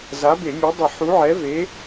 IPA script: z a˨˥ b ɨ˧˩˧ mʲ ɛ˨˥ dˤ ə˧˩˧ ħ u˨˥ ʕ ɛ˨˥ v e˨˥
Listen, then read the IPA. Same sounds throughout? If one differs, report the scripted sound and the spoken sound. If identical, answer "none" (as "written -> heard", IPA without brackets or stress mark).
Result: ɨ˧˩˧ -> e˧˩˧